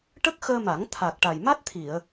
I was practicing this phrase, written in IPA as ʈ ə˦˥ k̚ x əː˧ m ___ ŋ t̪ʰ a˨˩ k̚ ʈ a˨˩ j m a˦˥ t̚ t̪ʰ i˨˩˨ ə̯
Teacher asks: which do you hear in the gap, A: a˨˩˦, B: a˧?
A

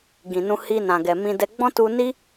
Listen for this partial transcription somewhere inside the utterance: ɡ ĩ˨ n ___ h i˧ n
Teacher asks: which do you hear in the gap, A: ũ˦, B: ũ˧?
B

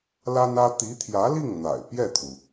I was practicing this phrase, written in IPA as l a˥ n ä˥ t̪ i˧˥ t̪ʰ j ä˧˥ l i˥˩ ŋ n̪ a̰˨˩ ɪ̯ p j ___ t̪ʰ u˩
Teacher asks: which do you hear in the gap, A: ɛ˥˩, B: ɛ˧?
A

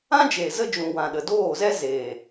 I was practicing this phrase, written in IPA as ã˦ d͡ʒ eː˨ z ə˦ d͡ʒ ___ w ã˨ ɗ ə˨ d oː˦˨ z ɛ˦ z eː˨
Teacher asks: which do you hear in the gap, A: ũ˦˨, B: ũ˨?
B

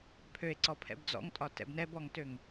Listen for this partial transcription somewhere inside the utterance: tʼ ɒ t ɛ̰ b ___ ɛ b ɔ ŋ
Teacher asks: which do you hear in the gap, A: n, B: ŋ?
A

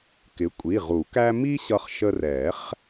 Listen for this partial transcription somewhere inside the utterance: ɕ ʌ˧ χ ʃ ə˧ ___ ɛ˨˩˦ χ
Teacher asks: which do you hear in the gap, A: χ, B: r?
B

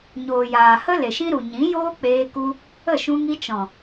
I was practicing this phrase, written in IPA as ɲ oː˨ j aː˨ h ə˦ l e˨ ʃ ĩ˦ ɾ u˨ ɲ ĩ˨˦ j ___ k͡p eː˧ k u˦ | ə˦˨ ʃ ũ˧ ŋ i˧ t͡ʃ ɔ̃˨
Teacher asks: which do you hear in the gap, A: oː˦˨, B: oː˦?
B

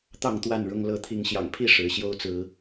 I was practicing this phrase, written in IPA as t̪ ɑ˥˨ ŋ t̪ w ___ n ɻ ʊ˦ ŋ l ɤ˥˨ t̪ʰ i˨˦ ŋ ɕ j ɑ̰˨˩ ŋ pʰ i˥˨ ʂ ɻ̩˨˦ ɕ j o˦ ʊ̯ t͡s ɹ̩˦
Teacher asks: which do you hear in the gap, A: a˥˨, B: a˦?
A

